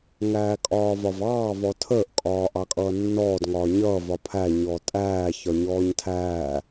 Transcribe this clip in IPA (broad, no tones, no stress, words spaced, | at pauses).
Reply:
ŋæːkʼɒːvɒvɑː vɔtʰəːʔ kʼɒːʔɑkʼʌːnːɔːd ŋɒːɲʌː vɒpʰæ ɲɔtʼæː çɒɲɔːɲtʰæː